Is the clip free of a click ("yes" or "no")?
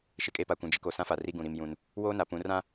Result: yes